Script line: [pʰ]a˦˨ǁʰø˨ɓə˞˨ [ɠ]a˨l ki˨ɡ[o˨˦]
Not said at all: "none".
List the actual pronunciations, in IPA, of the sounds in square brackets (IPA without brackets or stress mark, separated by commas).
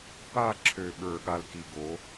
p, ɠ, o˨˦